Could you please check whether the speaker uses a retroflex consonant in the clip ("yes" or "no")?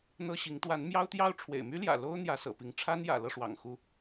yes